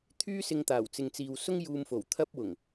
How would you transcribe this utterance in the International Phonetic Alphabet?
t̪ʰyː˥sɪ˧ŋt̪aː˨˩w t͡sɪ˨ŋt͡siː˨wsʊ˥ŋ juː˧mfo˨˩wt̪ʰɐ˥p̚wʊ˨˩ŋ

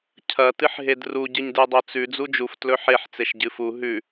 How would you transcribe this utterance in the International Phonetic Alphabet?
cʰɐ tɨħɦedru ɟɨɲdɨdˤot͡sʉ d͡zud͡ʒuf tlɵħeħ t͡seʃɟɨfu ɦʉ

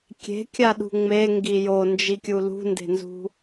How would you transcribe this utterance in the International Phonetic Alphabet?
kʲe̤kʲaɗṳ ŋ͡meŋɡi jond͡ʒikʲu lṳnde̤nzṳ

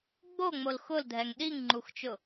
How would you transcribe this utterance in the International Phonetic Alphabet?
ɡ͡boŋ͡mol xʊldʱɛŋ ɗiŋŋ͡ǃuxt͡ʃʊ

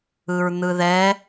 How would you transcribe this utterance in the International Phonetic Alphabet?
ɯɹn̪ɯðɛ

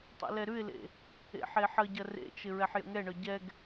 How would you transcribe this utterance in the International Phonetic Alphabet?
tˤɛ̰lɛɾʉɪ̯lḛ | ḛħeħəɟɐ rḛt͡ʃɪ ɹɛħjə̰ŋɛɳœ ɟɛɡ

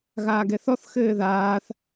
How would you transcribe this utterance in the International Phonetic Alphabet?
ɣaːɡɛθɔθ xɘːðaːθ

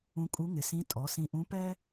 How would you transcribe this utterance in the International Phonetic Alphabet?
ũ˧kʼu˧˥ŋɪ˩sĩ˧˥ tʼɔ˩˧sĩ˧ʔũ˧˥ pɛ˥

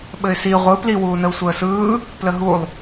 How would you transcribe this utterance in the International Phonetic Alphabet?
ɓɘɪ̯si ʁʷɯ pliwuːnəʊ̯ sʷəːsɯː | pləɦulˠ

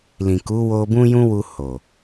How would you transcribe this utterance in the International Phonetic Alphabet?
lĩ˨ku˨˦ wo˧ bũ˦jũ˦wu˧ ho˨

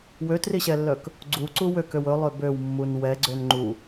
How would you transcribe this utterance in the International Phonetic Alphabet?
wøtriɕɛlːœk | ɡ͡ǀuǀu wøkøw ɵlˠø bøwmːun wɛɡ͡ǀøn ŋ͡ǃu

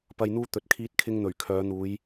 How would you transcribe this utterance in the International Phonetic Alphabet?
pɐ˨jn̪uː˧ t̪ɵ˨t̚kʰiː˧t̚kʰɪ˧ŋn̪ɵ˨˩ɥ kʰœː˨˧n̪uː˨˧j

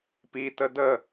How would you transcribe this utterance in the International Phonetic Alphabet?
pitə də

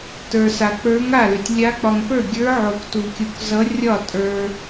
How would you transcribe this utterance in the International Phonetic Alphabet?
tə˞˨sa˨ k͡pə˞˧˥ŋ a˥˩lʏ˨tʲlʲa˧˥ k͡pɒ˨ŋpə˞˥˩ɡʲə˞˧˥ʕo˨k tu˨kʲu˨kzʌ˧˥rʲɒ˥˩ tʼə˞˨

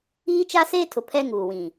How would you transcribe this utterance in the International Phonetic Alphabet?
iː˦t͡ʃa˦seː˦tʰʊ˨ pʰɛ˦ŋuː˨wĩ˨

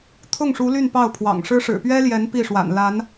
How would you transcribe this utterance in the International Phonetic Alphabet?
t̪ʰʊ˥˩ŋʂu˧˥ ly˥˧npɑ˥˩ʊ̯pʰwɑ̰˨˩ŋʂɻ̩˥ ʂɻ̩˨˩pɥɛ˥ljɛ˧˥n pi˥˩ʂwa̰˨˩n la˧˥n

